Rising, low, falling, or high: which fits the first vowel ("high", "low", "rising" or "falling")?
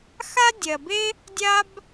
high